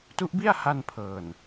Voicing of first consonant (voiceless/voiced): voiceless